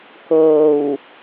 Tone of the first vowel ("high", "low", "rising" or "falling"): low